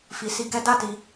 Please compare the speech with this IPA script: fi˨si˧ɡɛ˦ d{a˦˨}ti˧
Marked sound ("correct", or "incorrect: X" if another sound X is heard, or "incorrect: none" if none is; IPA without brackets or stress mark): correct